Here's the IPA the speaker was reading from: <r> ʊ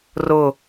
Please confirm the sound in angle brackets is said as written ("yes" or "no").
yes